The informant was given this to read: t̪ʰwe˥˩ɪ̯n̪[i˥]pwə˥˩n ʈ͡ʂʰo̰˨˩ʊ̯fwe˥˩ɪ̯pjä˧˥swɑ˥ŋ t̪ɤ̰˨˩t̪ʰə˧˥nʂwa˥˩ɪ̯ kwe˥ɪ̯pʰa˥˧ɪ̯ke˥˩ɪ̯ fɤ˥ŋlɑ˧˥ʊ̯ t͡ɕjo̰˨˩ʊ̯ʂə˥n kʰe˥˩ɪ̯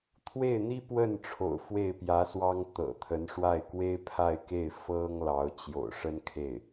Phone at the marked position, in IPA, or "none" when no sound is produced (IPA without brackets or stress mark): i˥